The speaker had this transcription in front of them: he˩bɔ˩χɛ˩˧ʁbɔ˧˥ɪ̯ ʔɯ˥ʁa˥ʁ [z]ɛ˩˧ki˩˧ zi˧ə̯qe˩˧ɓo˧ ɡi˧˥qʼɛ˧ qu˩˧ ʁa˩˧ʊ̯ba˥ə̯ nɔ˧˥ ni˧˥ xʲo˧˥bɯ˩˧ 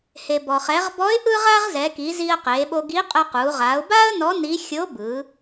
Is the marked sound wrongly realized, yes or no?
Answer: no